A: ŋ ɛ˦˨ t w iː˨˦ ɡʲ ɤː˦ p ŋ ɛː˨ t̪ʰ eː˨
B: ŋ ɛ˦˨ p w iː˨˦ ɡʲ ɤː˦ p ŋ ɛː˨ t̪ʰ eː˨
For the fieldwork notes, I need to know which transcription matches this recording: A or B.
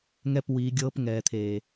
B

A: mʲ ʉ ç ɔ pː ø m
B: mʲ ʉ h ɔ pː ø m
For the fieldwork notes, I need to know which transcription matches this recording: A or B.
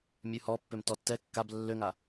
B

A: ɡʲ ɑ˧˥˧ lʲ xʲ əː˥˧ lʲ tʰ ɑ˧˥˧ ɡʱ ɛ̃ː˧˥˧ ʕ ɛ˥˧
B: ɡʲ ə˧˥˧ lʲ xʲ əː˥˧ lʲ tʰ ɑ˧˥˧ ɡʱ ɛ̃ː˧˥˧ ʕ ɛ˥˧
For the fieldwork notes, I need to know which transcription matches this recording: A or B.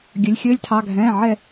B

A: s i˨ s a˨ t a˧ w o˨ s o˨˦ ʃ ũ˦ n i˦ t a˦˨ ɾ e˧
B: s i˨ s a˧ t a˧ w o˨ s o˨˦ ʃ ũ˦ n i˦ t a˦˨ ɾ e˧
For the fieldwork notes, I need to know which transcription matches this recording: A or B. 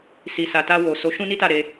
A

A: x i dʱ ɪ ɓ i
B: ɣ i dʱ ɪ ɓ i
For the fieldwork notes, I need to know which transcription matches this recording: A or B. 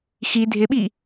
A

